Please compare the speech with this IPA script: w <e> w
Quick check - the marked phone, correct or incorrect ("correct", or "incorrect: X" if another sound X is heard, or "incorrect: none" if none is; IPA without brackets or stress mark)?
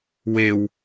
correct